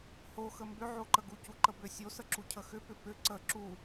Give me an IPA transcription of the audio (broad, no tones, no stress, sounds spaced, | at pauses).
h o x ə m b ʏ ʕ o ǃ ə ɡ u c u ǃ ə b ʏ sʲ o s ə ǁ u cʰ ə x ʏ p ʏ p ʏ ǀ ə ǁ u